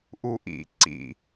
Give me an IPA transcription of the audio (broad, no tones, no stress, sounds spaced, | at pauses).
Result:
ʔ u ʔ ḭ ǀ ḭ